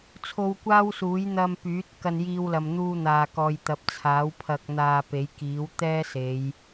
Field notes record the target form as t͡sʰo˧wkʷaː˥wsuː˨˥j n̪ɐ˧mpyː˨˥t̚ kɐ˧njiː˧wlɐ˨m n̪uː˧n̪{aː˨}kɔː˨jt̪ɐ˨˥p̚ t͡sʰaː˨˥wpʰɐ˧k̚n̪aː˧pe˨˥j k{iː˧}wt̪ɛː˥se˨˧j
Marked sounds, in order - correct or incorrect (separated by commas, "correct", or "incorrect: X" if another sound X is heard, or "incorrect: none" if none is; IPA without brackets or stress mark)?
correct, incorrect: iː˨˥